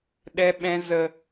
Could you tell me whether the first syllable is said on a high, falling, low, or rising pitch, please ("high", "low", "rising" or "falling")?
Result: low